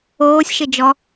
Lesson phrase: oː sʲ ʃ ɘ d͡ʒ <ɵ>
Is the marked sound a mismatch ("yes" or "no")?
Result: yes